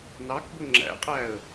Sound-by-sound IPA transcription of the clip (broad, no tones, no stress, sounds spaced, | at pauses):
n ɑ k b ʊ ŋ͡ǁ æ̰ qʼ æ ə̯